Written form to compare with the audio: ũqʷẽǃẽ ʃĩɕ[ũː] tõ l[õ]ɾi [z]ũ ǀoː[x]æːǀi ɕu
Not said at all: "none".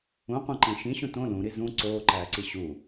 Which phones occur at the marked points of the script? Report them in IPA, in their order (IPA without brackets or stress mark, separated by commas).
ũ, ũ, z, ǃ